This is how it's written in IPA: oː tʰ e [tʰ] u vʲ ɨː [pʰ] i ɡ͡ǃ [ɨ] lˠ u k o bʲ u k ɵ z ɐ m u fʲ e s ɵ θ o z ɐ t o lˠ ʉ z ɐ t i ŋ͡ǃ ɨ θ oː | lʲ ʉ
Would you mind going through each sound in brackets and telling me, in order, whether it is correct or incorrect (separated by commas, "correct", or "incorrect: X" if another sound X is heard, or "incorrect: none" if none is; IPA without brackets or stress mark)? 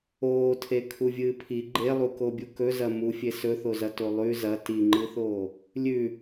incorrect: kʰ, correct, incorrect: e